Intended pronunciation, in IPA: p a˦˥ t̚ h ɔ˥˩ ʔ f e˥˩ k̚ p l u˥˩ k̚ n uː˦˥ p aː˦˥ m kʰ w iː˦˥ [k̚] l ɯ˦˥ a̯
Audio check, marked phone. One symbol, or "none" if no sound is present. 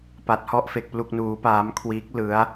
k̚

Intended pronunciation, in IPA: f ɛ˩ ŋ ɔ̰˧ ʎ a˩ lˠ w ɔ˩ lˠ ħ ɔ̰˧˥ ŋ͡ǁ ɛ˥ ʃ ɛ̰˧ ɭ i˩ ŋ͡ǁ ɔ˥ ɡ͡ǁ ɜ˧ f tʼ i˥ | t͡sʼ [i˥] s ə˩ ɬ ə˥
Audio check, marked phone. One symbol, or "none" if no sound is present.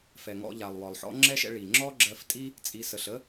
i˩˧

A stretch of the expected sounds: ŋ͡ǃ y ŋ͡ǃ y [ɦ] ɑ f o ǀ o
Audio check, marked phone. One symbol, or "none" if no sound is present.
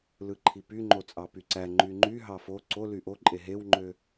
ɦ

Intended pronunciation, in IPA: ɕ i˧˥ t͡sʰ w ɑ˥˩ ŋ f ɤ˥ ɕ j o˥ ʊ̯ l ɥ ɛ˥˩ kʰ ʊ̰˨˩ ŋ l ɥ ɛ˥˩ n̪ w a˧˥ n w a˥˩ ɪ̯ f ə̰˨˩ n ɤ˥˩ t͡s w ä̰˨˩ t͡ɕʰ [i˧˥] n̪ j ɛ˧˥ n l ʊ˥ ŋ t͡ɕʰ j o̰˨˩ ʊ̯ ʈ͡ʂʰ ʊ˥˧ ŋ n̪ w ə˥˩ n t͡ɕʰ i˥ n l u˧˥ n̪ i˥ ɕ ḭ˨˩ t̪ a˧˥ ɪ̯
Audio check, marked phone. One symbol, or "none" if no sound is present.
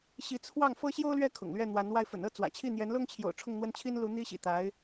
i˥˩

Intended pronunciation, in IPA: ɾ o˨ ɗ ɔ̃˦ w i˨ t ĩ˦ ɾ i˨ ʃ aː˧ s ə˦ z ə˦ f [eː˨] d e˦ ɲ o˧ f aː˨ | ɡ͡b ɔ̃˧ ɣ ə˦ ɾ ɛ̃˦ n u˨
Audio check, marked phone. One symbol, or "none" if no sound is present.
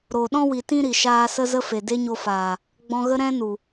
e˨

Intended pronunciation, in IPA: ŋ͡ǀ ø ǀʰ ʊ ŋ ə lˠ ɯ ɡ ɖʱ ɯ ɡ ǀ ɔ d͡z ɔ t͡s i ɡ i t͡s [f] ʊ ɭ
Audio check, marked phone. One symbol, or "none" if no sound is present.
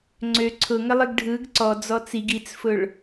f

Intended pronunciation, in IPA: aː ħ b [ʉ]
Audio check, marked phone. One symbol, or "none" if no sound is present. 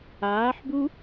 u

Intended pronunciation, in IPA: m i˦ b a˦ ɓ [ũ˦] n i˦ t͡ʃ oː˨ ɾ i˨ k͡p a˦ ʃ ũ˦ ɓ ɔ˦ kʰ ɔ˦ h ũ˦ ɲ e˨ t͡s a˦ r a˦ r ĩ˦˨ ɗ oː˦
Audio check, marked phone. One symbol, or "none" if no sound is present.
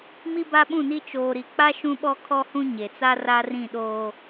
ũ˦˨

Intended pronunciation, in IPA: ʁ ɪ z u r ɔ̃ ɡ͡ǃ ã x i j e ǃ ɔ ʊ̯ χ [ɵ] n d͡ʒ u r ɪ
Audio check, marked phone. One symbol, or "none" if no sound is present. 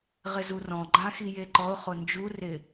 o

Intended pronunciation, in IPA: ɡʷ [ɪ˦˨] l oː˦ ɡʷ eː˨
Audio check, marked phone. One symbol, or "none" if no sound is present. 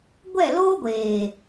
ɛ˦˨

